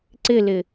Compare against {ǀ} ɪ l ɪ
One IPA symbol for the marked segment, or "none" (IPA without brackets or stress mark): ǀ